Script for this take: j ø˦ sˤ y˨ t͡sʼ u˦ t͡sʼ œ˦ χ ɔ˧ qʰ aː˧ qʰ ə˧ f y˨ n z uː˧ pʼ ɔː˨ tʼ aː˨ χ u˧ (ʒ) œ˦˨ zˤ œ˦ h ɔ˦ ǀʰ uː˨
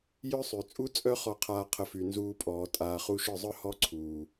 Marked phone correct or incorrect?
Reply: incorrect